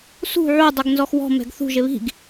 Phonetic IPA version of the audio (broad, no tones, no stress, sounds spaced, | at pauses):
s ṳ ʕ u dˤ u ɡ n z ɔ x w ɔ̤ m ɛ̤ ɡ θ ṳ ʒ ɪ β i̤ ɡ